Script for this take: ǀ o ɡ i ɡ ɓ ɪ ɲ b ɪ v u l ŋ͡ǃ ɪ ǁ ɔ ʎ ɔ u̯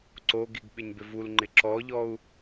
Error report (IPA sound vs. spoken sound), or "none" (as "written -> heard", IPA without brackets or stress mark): none